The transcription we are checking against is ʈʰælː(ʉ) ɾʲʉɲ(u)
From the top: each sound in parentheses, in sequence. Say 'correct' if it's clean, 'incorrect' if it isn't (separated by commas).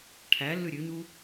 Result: correct, correct